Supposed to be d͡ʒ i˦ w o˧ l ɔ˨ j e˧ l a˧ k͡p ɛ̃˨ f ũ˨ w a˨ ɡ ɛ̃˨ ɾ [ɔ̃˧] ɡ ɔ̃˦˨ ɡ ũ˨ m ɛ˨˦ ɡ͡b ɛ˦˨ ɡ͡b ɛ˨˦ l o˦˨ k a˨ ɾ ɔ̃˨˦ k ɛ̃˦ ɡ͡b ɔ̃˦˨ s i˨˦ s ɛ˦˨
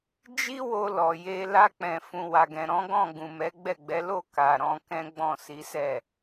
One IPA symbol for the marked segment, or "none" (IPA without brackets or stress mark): ɔ̃˨˦